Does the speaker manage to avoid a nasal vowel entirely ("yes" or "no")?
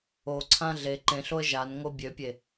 no